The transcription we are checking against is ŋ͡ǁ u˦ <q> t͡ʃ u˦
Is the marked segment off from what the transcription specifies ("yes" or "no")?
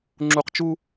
no